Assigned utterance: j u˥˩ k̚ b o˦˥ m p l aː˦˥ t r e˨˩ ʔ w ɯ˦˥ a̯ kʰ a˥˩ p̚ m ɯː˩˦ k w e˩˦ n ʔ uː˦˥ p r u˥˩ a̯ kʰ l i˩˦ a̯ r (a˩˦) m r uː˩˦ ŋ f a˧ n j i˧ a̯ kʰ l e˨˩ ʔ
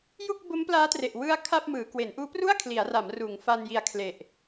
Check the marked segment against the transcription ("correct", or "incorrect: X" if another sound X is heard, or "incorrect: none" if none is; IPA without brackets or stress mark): correct